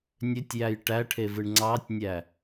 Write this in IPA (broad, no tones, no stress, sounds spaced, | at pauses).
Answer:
nʲ ø tʲ j æ j ʈ æ ʈʰ e v ɯ ɳ ŋ͡ǀ ɑ tʲ nʲ æ